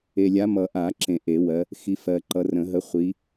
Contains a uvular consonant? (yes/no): yes